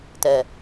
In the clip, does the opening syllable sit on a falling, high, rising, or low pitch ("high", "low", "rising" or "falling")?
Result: low